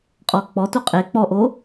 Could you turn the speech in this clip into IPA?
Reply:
qʼɔ k͡pɔtu qʼe k͡pɔʔo

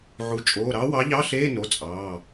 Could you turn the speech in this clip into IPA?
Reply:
ʕu˩˧˩t͡ʃʼoː˩˧˩ ɾɑ˨˥wɑ˨˥ʎɑ˧˥˧ɬeː˧˥˧ no˩˧˩ t͡sʼɑː˩˧˩

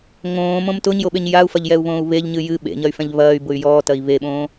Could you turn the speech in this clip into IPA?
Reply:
ŋõːmõm tʊɲjoɓeɲ jau̯fɐʎjɛu̯βõːu̯ βeʎɲɨ jɨ ɓḛɲɐy̯fɛ̃ʎ βɐːy̯bʊy̯ jɔːtɐi̯ βeɓõː

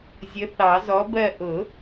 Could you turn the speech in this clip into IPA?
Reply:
zʲə˨˥θɑ˨˩˦zɔ˨˥bɜ˦˨ ʔʊ˨˩˦

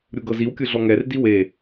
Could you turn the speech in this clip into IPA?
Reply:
ɾʲuɡɤziwkʲɯ ɮɔŋɛrdi we

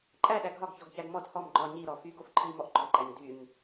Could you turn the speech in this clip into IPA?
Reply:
ǃʼæɗæ ɡʱɒɡçɔɡçæɡ mɔd hɔm ɡ͡ǃɒ ɲiɾɔ fyɡof ǃʰimɔʔ ɡ͡ǃɔǃæɲ dyɲ

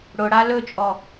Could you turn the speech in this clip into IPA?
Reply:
ɽʊɽa lɵt͡ʃʼɔ

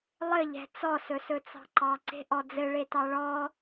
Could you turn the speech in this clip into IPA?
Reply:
lˠɘʎɛ̤ t͡sɔsɵsɵ t͡sɑ̤ǃɑ ǀe̤ʔɔd͡zɘ ɭetɑɭɔ

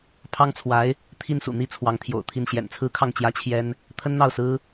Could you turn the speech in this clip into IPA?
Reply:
pʰɑ˥ŋt͡sʰwa˧˥ɪ̯ | t̪ʰi˥˩nsṵ˨˩n̪i˥ t͡sʰwɑ˧˥ŋt̪ʰjo̰˨˩ʊ̯t̪ʰi˥˩n ɕjɛ̰˨˩nt͡sʰɹ̩˥kʰɑ˥˩ŋ t͡ɕjä˥t͡ɕʰjɛ˥n | t̪ʰə˥nn̪ɑ˥˩ʊ̯sɹ̩˥

